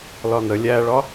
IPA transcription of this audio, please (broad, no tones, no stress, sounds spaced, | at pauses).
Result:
l ɒ n ə lʲ æ ɭ ɒ